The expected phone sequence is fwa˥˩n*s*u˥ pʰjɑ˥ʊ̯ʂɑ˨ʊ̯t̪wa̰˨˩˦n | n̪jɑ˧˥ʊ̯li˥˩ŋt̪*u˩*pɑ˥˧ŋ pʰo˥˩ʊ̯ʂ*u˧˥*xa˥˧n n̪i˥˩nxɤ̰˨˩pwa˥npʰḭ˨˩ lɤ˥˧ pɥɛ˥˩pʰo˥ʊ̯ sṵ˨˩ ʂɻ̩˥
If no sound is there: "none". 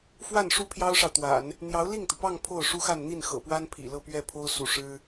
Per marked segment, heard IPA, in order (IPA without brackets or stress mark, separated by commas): ʂ, u˩, u˥